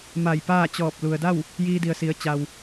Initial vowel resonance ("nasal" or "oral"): oral